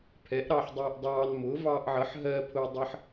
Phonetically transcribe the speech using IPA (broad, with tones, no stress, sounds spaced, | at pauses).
pʰ ɛ˩˥ ʔ ɾ ɑ˧ ħ dˤ ɜ˧ ʔ dˤ ɑː˧ n m ʊ˩˥ v ɑː˧ ʔ ʕ ʌ˩˥ ħ ɦ ɜ˧ pʰ ʊː˧ dˤ ʌ˧ ħ